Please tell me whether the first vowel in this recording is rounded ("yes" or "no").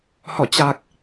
yes